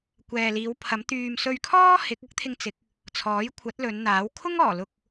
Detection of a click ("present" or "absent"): absent